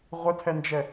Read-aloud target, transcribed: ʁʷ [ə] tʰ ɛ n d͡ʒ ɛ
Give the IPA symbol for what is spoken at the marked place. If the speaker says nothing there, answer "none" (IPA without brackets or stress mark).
ə